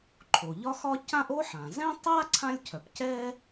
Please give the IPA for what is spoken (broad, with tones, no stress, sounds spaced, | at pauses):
ǃʰ o˩ ʎ ɒ˥ x ɒ˥ c ã˥ ʔ o˥ ħ ã˩ z ɛ̃˥ tˤ a˥ ǀʰ ã˥ lʲ cʰ œ˩ p c ɛ˥